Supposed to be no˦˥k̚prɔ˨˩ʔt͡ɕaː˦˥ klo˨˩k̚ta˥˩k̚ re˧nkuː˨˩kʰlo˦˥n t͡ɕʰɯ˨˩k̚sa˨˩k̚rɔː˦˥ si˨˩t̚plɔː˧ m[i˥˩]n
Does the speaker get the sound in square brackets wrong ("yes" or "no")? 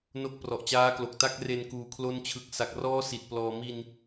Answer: yes